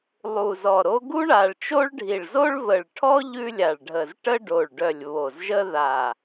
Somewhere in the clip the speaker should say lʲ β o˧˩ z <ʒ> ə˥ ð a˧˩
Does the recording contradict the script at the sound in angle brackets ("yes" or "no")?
no